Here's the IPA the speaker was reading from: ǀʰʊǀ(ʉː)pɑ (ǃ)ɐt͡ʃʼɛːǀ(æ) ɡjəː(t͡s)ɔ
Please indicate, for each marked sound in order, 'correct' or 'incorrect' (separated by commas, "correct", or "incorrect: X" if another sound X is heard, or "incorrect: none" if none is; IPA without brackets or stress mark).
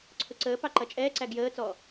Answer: incorrect: əː, correct, correct, correct